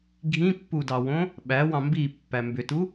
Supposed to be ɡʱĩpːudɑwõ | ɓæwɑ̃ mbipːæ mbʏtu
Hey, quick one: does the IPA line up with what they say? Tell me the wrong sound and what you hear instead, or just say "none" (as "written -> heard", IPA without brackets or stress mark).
none